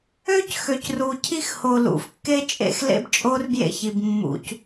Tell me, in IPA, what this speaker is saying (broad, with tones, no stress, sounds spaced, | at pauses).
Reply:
ø˦ c x ø˨ c r u˨ cʰ i˦ x h o˨ l ṵ˨ f kː e˦ t͡ʃʼ ḛ˦ x l ḛ˦ b t͡ʃʼ o˦ r b j ḛ˦ ç i˨ b mː ṵ˦ c